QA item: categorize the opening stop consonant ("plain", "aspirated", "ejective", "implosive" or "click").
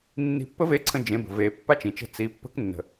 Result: plain